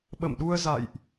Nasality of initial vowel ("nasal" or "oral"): oral